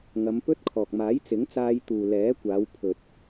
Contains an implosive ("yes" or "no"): no